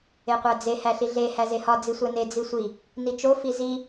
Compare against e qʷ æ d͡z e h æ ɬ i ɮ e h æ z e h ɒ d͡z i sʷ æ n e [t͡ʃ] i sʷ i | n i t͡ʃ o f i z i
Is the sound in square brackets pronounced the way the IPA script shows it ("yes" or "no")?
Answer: no